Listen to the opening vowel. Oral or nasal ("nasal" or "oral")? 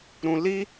nasal